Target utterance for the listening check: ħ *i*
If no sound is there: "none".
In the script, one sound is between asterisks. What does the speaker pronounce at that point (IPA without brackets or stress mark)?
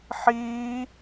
iː